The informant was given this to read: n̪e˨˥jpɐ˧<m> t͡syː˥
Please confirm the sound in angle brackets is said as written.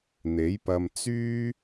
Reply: yes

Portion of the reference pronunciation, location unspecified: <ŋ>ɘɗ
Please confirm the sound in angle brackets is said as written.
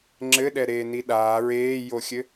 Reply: no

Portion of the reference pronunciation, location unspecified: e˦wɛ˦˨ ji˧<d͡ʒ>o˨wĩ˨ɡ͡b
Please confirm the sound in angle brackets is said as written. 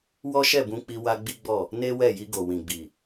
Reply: no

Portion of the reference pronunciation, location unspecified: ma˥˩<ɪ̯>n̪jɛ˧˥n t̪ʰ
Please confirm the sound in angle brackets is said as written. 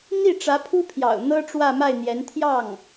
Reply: yes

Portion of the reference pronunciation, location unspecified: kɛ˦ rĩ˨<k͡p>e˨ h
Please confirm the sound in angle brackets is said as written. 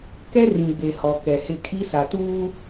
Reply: no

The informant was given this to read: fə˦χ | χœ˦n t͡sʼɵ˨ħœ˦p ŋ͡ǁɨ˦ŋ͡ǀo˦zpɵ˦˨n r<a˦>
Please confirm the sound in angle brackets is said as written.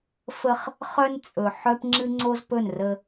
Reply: no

